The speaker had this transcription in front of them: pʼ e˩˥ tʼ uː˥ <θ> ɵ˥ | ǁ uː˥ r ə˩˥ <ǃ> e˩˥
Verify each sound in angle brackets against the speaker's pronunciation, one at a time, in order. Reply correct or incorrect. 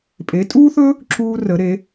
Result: correct, incorrect

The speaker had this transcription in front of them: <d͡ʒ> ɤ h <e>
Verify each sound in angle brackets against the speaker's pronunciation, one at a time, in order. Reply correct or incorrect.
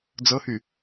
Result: incorrect, incorrect

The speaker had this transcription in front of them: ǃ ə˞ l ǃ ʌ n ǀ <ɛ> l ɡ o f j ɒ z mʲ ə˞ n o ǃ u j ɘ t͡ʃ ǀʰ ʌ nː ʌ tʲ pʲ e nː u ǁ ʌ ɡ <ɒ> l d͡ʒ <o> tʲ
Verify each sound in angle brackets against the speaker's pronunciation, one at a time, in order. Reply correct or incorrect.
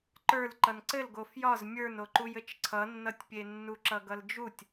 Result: incorrect, incorrect, incorrect

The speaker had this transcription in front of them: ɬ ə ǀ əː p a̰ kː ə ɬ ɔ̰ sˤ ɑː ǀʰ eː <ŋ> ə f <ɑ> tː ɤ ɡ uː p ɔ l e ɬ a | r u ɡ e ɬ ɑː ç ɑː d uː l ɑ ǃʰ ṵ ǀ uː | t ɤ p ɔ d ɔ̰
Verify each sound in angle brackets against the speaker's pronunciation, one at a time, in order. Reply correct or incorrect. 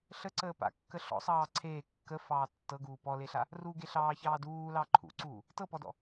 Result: incorrect, incorrect

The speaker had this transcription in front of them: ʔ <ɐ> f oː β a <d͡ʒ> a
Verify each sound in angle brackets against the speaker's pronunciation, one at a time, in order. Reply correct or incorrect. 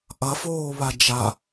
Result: correct, correct

